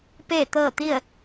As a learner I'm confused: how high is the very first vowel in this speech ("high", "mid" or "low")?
mid